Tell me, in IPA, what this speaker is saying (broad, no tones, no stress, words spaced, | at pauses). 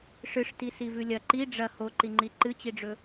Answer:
ʂɨʂti sivʉlʲɐ ǃi ɖ͡ʐɐ hoǃiŋ͡ǃi ǃɨt͡ɕiɖ͡ʐɵ